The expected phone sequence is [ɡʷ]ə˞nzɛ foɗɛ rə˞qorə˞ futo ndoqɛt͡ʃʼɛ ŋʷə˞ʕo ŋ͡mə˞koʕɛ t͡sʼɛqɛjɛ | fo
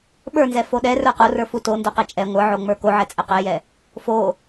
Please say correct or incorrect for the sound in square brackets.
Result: incorrect: ɓ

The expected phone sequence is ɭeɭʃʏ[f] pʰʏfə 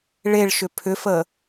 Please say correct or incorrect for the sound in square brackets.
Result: incorrect: none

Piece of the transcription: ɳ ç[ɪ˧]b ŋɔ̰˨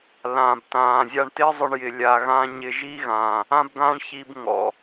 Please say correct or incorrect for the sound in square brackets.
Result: incorrect: i˧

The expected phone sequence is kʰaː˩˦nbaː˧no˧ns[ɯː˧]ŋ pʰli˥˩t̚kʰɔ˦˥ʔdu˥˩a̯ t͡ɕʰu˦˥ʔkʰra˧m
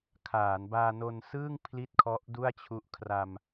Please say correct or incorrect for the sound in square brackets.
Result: incorrect: ɯː˥˩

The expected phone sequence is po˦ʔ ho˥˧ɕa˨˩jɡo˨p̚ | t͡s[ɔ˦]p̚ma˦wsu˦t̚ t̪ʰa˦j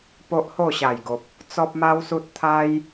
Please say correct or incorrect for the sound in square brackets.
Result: correct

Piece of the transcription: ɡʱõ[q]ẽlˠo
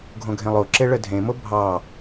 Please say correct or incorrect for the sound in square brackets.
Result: incorrect: ɡʱ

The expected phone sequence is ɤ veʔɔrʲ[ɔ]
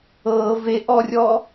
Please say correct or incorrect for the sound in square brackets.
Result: correct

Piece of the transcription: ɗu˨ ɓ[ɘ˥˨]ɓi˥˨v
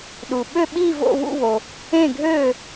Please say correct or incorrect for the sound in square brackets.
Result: incorrect: ø˥˨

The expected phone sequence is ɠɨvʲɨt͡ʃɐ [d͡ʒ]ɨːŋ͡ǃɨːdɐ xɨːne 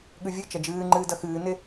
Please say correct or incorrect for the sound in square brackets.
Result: correct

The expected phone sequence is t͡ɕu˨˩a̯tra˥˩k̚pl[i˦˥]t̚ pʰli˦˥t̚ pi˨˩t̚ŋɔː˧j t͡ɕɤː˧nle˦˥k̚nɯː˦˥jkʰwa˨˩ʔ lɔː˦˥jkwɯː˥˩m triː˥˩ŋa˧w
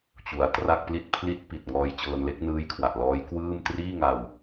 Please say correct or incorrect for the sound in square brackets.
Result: incorrect: i˥˩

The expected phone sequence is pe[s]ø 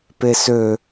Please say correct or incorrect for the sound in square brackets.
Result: correct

